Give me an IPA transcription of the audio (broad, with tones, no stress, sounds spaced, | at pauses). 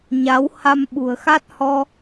ɲ a˨˦ w h a˧ m ɓ ṳ˨˩ ə̯ x a˦˥ t̚ h ɔ˧